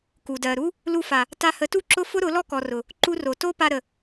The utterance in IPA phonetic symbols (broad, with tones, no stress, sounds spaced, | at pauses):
k u˨ d ɜ˨ ɾ u˦ | l u˧ f a˨ | t a˧ h ə˨˦ t u˦ ǁ ʊ˦ f ʊ˦ ɾ ʊ˨˦ l ɔ˦ k ɔ˨ r ʊ˨ | ǃ u˧ r o˨ t o˦ p a˧ ɾ ə˨